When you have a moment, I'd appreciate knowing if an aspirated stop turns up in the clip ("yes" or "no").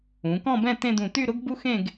no